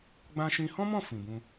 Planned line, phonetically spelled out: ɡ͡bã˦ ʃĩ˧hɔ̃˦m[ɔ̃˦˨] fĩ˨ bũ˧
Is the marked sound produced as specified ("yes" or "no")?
yes